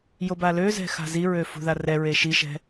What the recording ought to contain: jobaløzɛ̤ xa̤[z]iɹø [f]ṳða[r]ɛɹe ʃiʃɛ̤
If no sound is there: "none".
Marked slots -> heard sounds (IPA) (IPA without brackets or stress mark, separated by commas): z, f, r